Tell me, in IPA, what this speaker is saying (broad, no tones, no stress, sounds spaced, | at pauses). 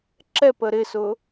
ǁ ɛ p ə ɾ ɪ s ʊ